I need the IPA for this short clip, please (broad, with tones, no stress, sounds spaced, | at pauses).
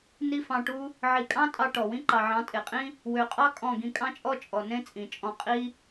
n i˦ f ɑ̃˧ ʈ u˦ | ʕ i˨ kʼ ɑ̃˦ tʼ ɑ˧ ʈ ɔ˨ w ĩ˦ ǃ ɑ˨ ʕ ɑ̃˨˦ tʼ e˨ qʼ ĩ˦ | w ø˨ qʼ ɑ˦ kʼ ɔ̃˦˨ ɡ ĩ˧ kʼ ɑ̃˦ t͡ʃʼ ɔ˦ t͡ʃʼ ɔ˨ n ẽ˦ t͡sʼ ĩ˨ t͡ʃʼ ɔ̃˧ qʼ i˦